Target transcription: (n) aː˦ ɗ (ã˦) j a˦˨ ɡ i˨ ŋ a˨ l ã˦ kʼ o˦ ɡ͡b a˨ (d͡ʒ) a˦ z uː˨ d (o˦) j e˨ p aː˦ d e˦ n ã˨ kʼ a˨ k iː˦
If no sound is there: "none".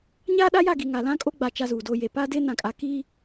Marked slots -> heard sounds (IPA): ɲ, a˦, t͡ʃ, o˦

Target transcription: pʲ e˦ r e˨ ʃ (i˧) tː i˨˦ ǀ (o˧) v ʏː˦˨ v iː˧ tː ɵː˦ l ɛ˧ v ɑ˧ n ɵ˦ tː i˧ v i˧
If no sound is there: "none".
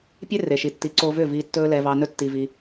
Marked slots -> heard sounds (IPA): i˨, o˧

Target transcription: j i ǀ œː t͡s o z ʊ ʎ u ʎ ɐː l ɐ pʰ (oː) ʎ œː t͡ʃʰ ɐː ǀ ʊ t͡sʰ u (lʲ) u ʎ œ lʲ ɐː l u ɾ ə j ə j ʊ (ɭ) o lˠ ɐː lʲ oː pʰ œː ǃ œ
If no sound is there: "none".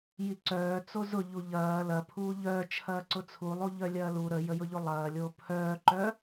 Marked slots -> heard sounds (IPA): uː, lˠ, ʎ

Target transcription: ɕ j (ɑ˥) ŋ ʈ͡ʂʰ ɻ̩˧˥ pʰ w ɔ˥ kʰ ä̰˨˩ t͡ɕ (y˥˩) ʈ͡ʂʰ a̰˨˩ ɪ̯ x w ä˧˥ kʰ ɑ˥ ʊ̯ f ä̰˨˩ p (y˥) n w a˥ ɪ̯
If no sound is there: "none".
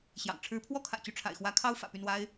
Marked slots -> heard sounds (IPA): ɑ̰˨˩, y˥˩, y˥˩

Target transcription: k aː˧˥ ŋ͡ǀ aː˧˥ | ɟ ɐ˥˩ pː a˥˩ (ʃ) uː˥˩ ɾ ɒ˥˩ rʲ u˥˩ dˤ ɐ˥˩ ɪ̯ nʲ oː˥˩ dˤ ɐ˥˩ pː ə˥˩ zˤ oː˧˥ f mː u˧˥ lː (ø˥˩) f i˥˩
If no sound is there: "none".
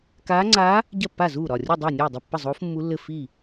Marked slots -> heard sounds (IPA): z, ɘ˥˩

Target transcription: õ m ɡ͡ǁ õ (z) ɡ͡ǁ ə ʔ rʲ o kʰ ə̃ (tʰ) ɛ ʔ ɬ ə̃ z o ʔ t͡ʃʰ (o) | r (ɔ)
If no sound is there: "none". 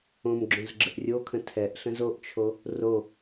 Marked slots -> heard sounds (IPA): z, tʰ, o, o

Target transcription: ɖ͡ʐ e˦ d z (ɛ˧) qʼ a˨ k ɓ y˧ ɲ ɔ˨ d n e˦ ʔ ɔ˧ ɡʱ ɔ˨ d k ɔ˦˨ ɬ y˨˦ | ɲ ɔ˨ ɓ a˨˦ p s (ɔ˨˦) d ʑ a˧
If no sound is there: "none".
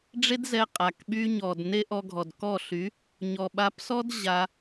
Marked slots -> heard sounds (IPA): ɛ˧, ɔ˦

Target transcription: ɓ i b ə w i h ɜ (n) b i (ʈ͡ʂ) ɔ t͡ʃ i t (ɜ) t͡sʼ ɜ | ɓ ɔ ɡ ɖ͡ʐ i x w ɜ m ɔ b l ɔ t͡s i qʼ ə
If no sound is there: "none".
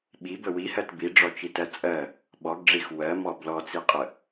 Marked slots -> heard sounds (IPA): t, ɖ͡ʐ, ɜ

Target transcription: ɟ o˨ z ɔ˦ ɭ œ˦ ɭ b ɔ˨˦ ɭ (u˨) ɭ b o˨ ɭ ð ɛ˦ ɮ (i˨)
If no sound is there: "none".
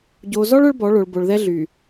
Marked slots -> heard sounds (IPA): o˨, y˨

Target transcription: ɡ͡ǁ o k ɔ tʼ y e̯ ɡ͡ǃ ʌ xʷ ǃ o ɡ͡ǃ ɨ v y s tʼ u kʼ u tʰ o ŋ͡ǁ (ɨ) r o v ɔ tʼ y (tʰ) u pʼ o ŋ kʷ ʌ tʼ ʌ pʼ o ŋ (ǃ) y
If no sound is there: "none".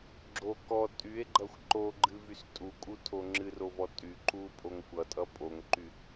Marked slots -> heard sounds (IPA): ɨ, ǃ, ǃ

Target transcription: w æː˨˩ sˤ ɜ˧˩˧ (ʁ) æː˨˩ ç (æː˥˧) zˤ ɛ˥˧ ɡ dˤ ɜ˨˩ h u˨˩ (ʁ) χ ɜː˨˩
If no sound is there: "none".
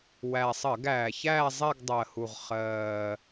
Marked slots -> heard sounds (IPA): ɡ, æː˥˧, ʁ

